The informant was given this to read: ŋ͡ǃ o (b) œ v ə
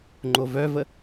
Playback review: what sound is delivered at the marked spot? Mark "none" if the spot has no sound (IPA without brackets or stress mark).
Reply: v